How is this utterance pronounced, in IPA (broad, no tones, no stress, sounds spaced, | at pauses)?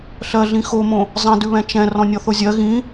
ɬ ɜ ɮ ĩ x o m õ | zˤ ɛ̃ d ʉ β ɛ̃ t͡ʃ ɛ̃ r ɔ̃ nʲ ɔ θ o zʲ ɜ ɣ ĩ